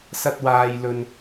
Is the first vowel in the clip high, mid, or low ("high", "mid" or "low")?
low